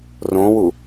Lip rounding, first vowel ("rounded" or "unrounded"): rounded